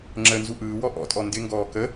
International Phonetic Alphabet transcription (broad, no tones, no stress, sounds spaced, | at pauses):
ŋ͡ǁ ə n z u ʔ ɯː w ɔ ʔ ɔ̰ tʼ ɔ n d ɪ ŋ ɡ ɔː k ə